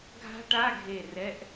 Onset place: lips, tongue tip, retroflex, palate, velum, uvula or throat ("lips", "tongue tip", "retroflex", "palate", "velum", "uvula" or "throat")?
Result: velum